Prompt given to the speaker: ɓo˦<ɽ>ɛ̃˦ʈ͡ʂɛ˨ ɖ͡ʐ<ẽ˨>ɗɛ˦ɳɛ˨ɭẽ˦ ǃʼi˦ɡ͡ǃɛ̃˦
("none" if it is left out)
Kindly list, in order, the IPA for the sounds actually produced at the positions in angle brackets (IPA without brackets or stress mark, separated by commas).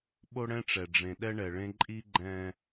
ɽ, ẽ˨